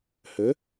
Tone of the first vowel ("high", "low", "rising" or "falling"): rising